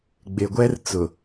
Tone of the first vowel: low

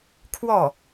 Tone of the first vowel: falling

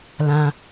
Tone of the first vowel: low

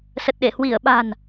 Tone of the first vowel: low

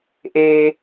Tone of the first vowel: low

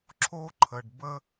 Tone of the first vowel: high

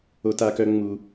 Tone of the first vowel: high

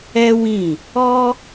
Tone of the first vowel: high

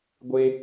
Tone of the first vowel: high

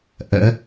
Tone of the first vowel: rising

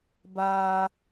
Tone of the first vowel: high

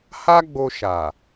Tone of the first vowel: high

